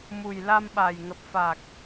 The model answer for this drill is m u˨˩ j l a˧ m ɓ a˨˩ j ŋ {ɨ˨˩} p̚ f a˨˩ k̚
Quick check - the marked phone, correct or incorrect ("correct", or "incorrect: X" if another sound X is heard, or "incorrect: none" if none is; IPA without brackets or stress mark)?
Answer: incorrect: ə˨˩